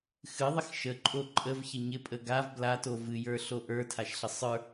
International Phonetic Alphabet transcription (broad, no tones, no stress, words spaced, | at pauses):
xɨðˤɪx ʃəǃʼo ǃʼəvçə ɲɪpʼə ɡav blato vɨjə˞ɬo ʔə˞tʰaʃɬə sˤə˞